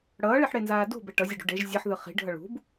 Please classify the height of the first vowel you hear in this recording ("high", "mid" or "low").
mid